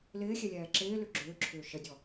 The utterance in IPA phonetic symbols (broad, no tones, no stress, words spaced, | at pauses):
lɪːxʲɛlʲɛː ǁɪːlʏ ɡ͡ǁʏːǁʰʏː ʃədʲɔ